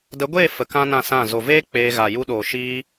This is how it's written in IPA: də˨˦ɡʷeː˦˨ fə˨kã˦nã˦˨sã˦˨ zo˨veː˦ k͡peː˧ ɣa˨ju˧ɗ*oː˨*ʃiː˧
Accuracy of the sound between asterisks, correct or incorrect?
correct